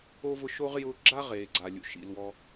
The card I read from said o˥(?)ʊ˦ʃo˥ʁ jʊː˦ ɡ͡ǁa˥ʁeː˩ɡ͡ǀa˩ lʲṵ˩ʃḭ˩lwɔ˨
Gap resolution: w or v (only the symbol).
v